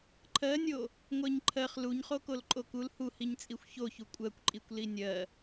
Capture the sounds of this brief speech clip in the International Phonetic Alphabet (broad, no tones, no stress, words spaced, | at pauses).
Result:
ǃʰɜnʲo | ŋʷɜɲǃʰɜχ luɲχokol ǃʼokul huhiɲt͡sʼixʷ çoçu kʷʼɜkʷǃʼikʷ linʲɜ